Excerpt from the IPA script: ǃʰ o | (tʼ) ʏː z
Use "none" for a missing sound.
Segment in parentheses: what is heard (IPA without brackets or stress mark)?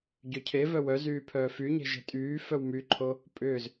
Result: pʼ